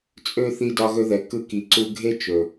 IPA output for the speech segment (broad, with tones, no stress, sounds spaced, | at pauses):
t͡sʼ ø˦ θ i˧ d ɒ˧ ɣ ɵ˧ ð ɛ˨ k ɯ˧ k i˨ ǀ u˧ ɡʱ e˦ t͡ʃ ɵ˨